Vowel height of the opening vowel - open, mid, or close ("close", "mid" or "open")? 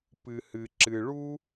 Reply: close